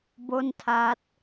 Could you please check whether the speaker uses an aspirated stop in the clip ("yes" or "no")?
yes